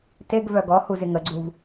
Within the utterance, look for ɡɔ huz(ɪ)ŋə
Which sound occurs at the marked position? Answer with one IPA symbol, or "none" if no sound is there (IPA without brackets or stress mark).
ɪ